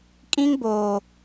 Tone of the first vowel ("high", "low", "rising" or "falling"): high